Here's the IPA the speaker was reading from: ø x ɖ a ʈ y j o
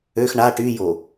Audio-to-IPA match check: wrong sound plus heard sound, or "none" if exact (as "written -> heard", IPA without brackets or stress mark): ɖ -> ɳ